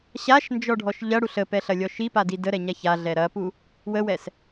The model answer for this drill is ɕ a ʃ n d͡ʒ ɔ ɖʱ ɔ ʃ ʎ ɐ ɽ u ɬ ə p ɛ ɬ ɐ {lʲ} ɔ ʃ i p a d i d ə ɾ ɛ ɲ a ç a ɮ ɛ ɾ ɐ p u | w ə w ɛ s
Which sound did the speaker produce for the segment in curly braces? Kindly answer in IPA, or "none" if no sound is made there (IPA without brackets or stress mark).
lʲ